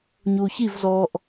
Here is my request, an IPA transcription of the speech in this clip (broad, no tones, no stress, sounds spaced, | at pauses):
ɲ uː ç i v z ɔː ʔ